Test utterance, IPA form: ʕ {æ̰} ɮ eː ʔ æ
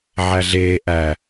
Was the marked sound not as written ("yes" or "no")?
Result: yes